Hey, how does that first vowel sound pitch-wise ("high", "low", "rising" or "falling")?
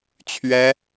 high